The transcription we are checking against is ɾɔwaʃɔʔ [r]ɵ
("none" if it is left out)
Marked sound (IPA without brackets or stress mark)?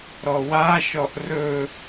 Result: r